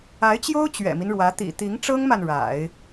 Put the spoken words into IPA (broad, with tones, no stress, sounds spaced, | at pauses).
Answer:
a˧˥ ɪ̯ t͡ɕ j o˥ ʊ̯ t͡ɕ ɥ ɛ̰˨˩ m i˦ n ɻ w ä˧˥ t̪ ḭ˨˩ t̪ i˧˥ ŋ ʈ͡ʂ ɤ˥ ŋ m a˨ n ɻ a̰˨˩˦ ɪ̯